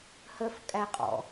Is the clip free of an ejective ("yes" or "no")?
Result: no